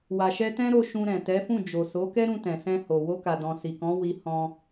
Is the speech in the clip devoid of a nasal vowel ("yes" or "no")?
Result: no